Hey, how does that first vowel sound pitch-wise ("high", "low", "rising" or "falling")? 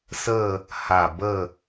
falling